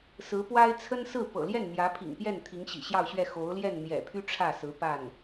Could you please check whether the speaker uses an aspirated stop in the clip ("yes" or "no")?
yes